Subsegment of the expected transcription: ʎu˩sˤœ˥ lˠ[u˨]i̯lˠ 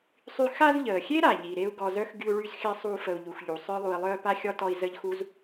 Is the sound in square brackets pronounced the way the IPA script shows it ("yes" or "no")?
yes